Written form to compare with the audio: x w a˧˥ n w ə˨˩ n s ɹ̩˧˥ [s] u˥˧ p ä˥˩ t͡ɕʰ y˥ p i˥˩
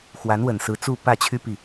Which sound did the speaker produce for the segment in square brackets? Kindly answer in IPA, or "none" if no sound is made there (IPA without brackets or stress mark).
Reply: t͡s